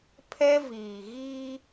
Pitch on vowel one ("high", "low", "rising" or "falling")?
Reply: high